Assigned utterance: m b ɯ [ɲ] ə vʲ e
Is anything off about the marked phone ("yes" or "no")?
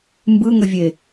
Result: yes